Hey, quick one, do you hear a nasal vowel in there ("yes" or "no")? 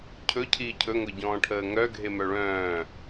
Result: yes